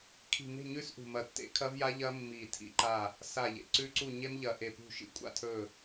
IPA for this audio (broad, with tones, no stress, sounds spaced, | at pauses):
kʰ i̤˧˩ n e̤˥˨ ɲ ʉː˦˥ s ʔ ṳ˧˩ m ɐ˧˩ tː ḛ˦˥ kʰ ɐ˦˥ v j a˦˥ ʎ ɐː˦˥ mː iː˧˩ tʰ ḭ˦˥ ǃ aː˥˨ | s a˧˩ ʎ ḛ˧˩ ǀ ʉ˦˥ ǀ u˥˨ ɲ e˦˥ m ʎ ɐː˧˩ ʔ e˧˩ p ṳ˥˨ ʃ ḭ˦˥ kʷʼ a̰˥˨ tʰ ɵː˥˨